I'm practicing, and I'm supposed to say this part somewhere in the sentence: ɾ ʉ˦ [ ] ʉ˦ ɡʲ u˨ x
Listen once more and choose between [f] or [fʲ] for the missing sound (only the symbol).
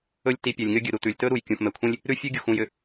fʲ